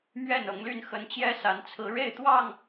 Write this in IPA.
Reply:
m ɥ ɛ˥˨ n ɤ˨˦ ŋ l y˥˨ n x ə˨˦ n t͡ɕ j ɛ˦ s a˨˦ n t͡sʰ ɹ̩˨˦ ɻ e˥˨ ɪ̯ t̪ w ɑ˥˨ ŋ

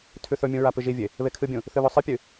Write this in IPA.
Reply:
tʰ ʉ θ ɵ mʲ ũ ɹ a p ɨ ʒ i vʲ e | β e kʰ ɨ bʲ ũ | θ ɨ β ɵ sˤ ɨ pʲ ɨ

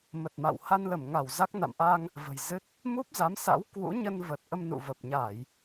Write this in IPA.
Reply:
m ə˨˩ t̚ m a̰˧˨ w h a˧ n l ə˧˩ m ŋ a˧˩ w z a˦˥ k̚ n a̰˧˨ m ʔ a˧ ŋ | v ə̤˨˩ j z ɨ˦˥ t̚ | m u˦˥ p̚ z a˨˦ m s a̰˧˥ w k w ṵ˧˥ ɲ ə˧ n v ə˨˩ t̚ ʔ ə˧ m n ṵ˧˨ v ə˨˩ p̚ ɲ a˧˩˨ j

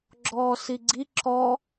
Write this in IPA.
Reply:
ɡ͡ǁ ɔː s i ɡ͡ǀ i ǁ ɔ

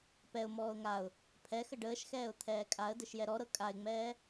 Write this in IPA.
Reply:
p ɛ ʊ̯ m ɔː ʊ̯ ŋ a ʊ̯ | pʰ ɛ x ə ɖ əː ʃ x ɛː ʊ̯ t̪ʰ ɛː kʼ a ə̯ d ɘ ʃ j ɛ ɾ ɔ ɾ ɤ kʼ a ɪ̯ ŋ͡m ɛː

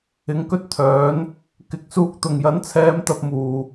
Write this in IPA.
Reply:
ɪ˨˧ ŋ k ɵ˥ t̚ t̪ʰ œː˨˥ n | k ɪ˨˥ k̚ s uː˧ k̚ t̪ ʊ˨˩ ŋ j ɐ˨˥ n t͡sʰ ɛː˨˧ m t̪ ɐ˧ p̚ m uː˨˩

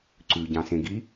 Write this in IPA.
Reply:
ǀ ʉ ɟ ɑ̃ s ẽ ɡ i

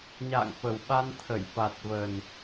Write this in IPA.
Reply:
ɲ a̰ː˧˨ ŋ f ə˨˩ w ɓ a˧ n t̪ʰ ə˧˩ j f a˨˩ t̚ v ə˨˩ n

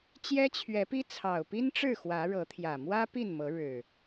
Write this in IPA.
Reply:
t͡ɕ j ɛ˦ t͡ɕʰ ɥ ɛ˨˦ p i˦ t͡sʰ ɑ˨˩ ʊ̯ p i˦ n ʈ͡ʂ ɻ̩˥˨ x w ä˨˦ ɻ ɤ˨˦ t̪ʰ j ä˨˩ m w ä˦ p i˥˨ n m ɤ˨˦ ɻ ɻ̩˨˩

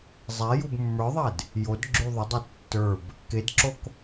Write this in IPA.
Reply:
zˤ ɛ j u b mː ə˞ ðˤ ɛ d | j o d ɡ͡ǁ y ðˤ ə dˤ ɛ tː ə˞ b | k e d ǁ o k

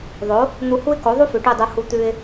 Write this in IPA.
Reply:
ðˤ o˩˥ | n̪ u˧ h u˥ ɪ̯ k o˩˥ ðˤ u˥ f ʉ˩ ʈ ʉ˥˩ dˤ u˧ h u˧ t̪ ʉ˧ ɪ̯

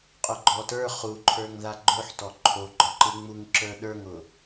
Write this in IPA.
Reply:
qʼ ʊ ɡ͡ǃ ɔ t ə˞ χ u ǃʰ ə˞ ŋ ð a ɡ͡ǃ ʊ ħ t ɔ ǃʰ o ɡ͡ǃ ɔ ǃ ɯ ŋ͡m u ŋ ǁ ə˞ ɗ ə˞ ŋ ʊ

